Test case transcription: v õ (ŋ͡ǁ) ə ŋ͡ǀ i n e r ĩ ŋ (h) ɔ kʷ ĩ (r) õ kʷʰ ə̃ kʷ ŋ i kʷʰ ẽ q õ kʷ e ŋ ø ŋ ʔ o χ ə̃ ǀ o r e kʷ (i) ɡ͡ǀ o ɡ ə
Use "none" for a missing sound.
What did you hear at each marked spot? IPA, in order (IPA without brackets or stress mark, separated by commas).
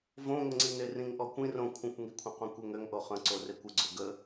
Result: ŋ, ʔ, r, ɨ